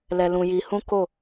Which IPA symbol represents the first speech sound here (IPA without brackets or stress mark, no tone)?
l